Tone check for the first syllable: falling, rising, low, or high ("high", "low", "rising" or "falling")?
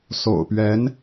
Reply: low